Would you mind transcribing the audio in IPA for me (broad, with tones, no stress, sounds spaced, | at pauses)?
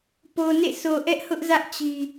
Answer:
p o˨ n ḛ˦˨ s o˨ ʔ ɛ˦ ʔ h ʊ˦ ʔ z ä˦ ʔ t͡ɕ i˨